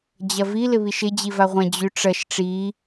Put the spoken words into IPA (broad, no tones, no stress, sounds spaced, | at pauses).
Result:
d͡ʑ ɐ v i l ɪ β i ʃ ɪ d͡ʑ i v a ʁʷ ɐ̃ d͡ʑ y ʈ͡ʂ ɐ ʃ ʈ͡ʂ i